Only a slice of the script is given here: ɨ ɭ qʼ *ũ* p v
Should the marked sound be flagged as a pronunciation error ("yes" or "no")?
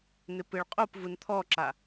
yes